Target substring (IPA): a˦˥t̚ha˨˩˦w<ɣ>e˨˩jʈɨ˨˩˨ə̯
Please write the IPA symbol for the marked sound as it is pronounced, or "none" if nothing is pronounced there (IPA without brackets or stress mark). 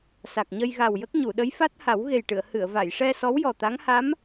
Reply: ɣ